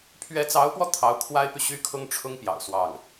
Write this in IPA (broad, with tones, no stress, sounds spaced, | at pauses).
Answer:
pʰ ɥ ɛ˧˥ t͡s ɑ˧˥ ʊ̯ p w ɔ˧ t̪ʰ ɑ˧˥ ʊ̯ kʰ w a˥ ɪ̯ p y˨ ɕ y˥ kʰ ʊ˥ ŋ ʈ͡ʂʰ ʊ˥ ŋ p j ɑ̰˨˩ ʊ̯ s w ɑ˥˩ ŋ